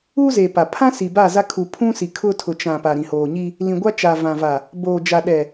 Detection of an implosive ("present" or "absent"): present